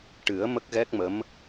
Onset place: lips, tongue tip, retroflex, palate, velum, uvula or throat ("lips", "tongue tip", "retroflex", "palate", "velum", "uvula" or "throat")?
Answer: retroflex